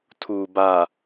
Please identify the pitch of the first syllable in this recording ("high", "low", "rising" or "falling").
low